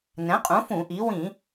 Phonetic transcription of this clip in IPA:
n ɛ̃˩˥ qʼ ũ˩˥ f ũ˧˩˧ ʔ i˩˥ w ĩ˧˩˧

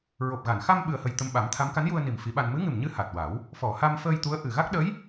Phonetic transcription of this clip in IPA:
ɹ o˨˩ p̚ ɣ a˨˩˨ n x a˧ m ɓ ɨ˨˩ ə̯ h ə˨˩ j t̪ ə˧ m ɓ a˨˩˦ m t̪ʰ a˧˥ m k a˧˥ n j u˧ ə̯ n i˨˩ m f i˧˥ ɓ a˧ n m ɨ˧˥ ŋ ɨ˨˩ m ɲ ɨ˧ h a˨˩ t̚ w a˨˩˦ w | f ɔ˨˩˨ h a˧ m f əː˧ j t̪ u˧˥ ə̯ ʔ ɨ˨˩ ɣ a˦˥ k̚ ɗ ə˧˥ j

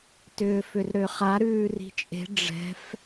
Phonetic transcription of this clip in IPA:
t ʏː f ʏ r ɾ ø χ a ɾ ʉː r i̤ t͡ʃʼ e̤ ɖ͡ʐ ɛ̤ f

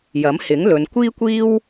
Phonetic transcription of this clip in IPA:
j ɐ˨˥ m h ɪ˨˥ ŋ l ɵ˨˧ n kʷ iː˥ kʷ iː˥ w

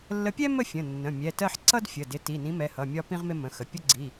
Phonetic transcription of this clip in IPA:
lː ə˨˥ pʲ ɛ˥ m ə˥˧ fʲ ə̃˩˧˩ nː ə̃˩˧˩ mʲ ɛ˩˧˩ t ɜ˥˧ ħ ǀ ʌ˥ d fʲ ə˩˧˩ d ɪ˨˥ t i˩˧˩ n ĩ˨˥ m ɛ˩˧˩ h ʌ˩˧˩ mʲ ɒ˥ p ĩ˥ ʁ m ɪ˥ m ə̃˩˧˩ x ə˩˧˩ pʲ ʊ˥ ɡ͡ǀ i˩˧˩

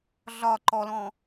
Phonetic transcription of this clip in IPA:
ɮ ɒ ǃ ɔ l ɔ̃

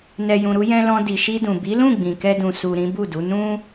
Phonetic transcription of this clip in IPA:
n ɛ˨ j ũ˨ ɾ u˧ j ɛ̃˧ l ɔ̃˧ d i˨ ʃ i˧ d ũ˨ b i˨˦ l ũ˦˨ ɡ͡b ĩ˨ k ɛ˧ d ũ˨ s u˨ ɾ ĩ˨˦ b u˦˨ d u˨˦ n ũ˦

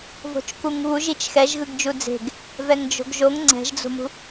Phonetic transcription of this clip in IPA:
v o̤ t͡ʃ k u ŋ β u ʒ i t͡ʃ x ɛ ʒ ɣ ɯ ɡ d͡ʒ u d͡z e̤ ɡ | v ɛ ŋ d͡ʒ o̤ ɡ ʒ o ŋ ŋ͡ǀ ɛ̤ ʒ d͡z o̤ m ṳ

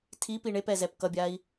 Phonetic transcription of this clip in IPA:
tʰ i p i ɳ e p ɛ z ɛ p k ʌ bʲ a i̯

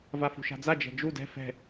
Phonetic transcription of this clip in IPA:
v a f ṳ ʃ a̤ d͡z a d͡ʒ ɛ̤ d͡ʒ u d ɛ̤ f ɛ̤

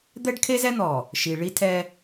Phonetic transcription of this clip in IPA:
d̪ ɛ˦ ɖ kʰ e˦ z ɛ˦ n̪ ɔ˨ | ʃ i˨ ɭ i˦ tʰ ɛ˦

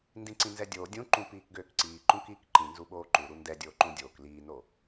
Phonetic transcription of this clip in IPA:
n d ĩ ǀ ĩ n z ɛ dʲ oː dʲ ũ ǃ ũ p iː k ɡ øː k ǀ iː ǃ ũ k iː k ǃ ĩ n z u ɓ oː ǃ u ɾ u n d ɛ dʲ oː ǃ ũ dʲ oː k l iː n o

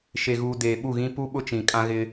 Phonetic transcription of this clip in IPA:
ʃ e˨ ɣ uː˨ d eː˨ ɓ u˦˨ ɣ ĩ˦ p u˦ ɓ ʊ˦ t͡ʃ ĩ˨ kʼ ã˦ ɣ ɪ˦

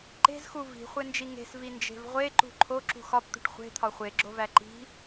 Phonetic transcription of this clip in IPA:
ǃ e̤ z x u v i̤ χʷ e n d͡ʒ i ŋ e̤ s v i n d͡ʒ e̤ v ʁʷ e ǃ ṳ ǃʰ o ǁ ṳ x ɒ p t̪ ṳ ʈ χʷ e̤ t̪ʰ ɒ χʷ e ɡ͡ǁ o v æ ǃ i̤

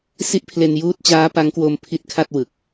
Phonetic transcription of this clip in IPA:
s i˦˥ ʔ pʰ l e˧ n j uː˦˥ t̚ t͡ɕ aː˦˥ p a˦˥ ŋ k w o˧ m pʰ i˦˥ t̚ kʰ a˥˩ t̚ w ɯ˨˩ k̚

